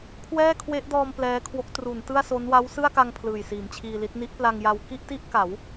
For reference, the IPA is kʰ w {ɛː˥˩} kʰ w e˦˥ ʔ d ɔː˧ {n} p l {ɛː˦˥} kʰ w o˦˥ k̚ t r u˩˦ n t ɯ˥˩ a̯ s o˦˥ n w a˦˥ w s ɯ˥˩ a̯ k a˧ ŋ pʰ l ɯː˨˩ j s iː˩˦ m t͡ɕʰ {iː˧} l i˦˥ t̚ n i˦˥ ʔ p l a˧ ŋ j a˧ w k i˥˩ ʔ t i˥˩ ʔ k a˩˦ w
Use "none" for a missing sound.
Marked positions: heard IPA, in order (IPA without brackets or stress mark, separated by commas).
ɛː˥˩, m, ɛː˦˥, iː˧